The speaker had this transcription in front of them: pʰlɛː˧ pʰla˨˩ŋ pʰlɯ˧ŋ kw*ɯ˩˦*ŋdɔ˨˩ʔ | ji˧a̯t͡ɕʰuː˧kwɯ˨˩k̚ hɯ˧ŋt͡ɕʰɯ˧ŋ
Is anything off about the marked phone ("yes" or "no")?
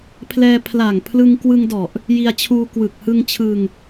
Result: yes